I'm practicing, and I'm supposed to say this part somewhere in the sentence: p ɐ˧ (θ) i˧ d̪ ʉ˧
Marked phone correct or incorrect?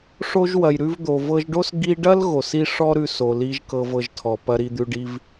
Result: incorrect: ɾ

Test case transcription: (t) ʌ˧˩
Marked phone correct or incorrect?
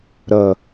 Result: incorrect: ɾ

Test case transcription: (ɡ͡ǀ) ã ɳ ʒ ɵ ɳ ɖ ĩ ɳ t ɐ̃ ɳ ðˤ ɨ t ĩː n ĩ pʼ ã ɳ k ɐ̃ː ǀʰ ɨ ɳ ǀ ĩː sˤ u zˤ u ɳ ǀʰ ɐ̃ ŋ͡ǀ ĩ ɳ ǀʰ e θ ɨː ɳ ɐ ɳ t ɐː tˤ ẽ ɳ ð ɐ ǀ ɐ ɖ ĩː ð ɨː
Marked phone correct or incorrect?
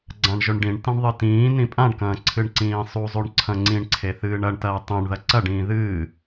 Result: correct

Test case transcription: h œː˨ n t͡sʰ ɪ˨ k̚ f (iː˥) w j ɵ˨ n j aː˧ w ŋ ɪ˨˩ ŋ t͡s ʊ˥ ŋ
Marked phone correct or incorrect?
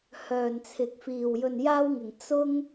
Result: incorrect: iː˨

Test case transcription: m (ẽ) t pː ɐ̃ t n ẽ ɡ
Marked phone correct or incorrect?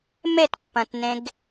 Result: incorrect: e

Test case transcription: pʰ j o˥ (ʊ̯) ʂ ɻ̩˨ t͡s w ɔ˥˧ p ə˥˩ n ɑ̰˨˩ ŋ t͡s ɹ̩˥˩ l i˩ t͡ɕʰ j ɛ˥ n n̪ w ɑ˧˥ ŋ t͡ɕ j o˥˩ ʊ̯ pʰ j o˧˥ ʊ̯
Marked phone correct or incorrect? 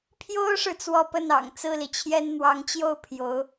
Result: correct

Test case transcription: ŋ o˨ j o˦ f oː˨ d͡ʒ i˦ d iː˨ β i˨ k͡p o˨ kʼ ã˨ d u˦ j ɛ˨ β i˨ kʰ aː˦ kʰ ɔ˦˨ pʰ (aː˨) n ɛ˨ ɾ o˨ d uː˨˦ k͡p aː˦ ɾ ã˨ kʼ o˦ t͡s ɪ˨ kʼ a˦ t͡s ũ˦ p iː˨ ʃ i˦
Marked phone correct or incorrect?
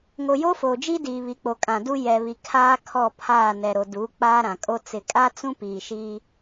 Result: incorrect: aː˦˨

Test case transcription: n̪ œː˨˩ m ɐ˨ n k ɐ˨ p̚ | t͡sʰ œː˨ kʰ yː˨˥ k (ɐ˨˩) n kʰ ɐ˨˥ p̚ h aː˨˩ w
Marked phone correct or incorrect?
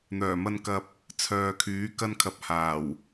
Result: incorrect: ɐ˧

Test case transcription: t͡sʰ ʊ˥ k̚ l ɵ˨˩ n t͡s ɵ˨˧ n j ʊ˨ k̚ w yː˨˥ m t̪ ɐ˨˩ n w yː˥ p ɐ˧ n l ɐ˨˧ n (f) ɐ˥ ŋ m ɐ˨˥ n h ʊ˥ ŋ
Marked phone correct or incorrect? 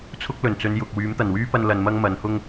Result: incorrect: m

